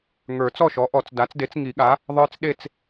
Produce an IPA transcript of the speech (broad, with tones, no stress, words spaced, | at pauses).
ŋə˞˨˩˦ t͡sɔ˥˨ʃɔ˩˥ʔɔ˨˩˦t͡s da˩˥t͡sde˩˥t͡s ŋi˨˩˦ɠa˩˥ | ðˤə˞˦t͡sɗe˥˨t͡s